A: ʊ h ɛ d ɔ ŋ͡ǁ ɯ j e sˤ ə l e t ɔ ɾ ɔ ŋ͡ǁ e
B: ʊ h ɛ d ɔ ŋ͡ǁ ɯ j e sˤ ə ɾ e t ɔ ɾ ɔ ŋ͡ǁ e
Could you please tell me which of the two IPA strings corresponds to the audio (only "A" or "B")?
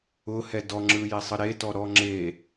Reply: B